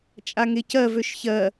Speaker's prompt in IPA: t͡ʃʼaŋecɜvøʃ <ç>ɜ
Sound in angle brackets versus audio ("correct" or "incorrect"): correct